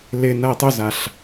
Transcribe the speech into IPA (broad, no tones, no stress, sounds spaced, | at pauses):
l ɪ n ɐ ɪ̯ tˤ ʊ z a ɬ